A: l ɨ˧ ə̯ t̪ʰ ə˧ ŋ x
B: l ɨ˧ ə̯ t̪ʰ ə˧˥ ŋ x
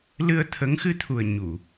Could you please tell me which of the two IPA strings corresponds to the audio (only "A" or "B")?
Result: B